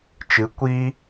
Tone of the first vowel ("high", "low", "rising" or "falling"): rising